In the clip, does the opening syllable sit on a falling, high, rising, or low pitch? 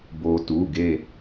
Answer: low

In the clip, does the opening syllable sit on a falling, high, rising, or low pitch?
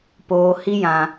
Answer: high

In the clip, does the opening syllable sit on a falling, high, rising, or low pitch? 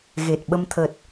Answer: low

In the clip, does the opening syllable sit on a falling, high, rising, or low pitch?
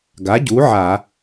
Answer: rising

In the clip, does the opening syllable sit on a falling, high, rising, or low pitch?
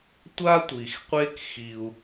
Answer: high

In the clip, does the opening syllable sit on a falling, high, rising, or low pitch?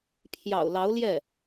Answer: low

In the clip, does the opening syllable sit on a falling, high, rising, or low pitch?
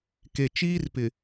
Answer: low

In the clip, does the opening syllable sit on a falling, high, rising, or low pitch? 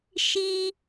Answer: high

